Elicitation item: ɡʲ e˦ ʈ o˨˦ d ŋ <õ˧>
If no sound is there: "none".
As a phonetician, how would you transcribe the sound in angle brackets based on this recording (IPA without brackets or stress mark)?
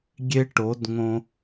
õ˧